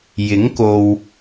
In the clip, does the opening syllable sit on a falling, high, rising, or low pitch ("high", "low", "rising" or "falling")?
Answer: rising